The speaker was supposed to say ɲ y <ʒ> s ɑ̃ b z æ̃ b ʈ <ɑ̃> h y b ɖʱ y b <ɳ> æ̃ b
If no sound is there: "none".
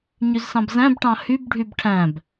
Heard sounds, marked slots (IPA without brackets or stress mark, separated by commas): z, ɑ̃, ʈʰ